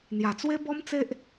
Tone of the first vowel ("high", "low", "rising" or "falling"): low